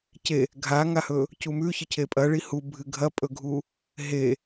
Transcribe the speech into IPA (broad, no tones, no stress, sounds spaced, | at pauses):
c e | ɡʱ a ŋ a h ɵ | c u m ʉ ç ɨ cʰ e pʼ ɐ ɭ i h u bʱ ɨ ɡʱ ɐ pʼ ɵ ɡʱ u | ɦ e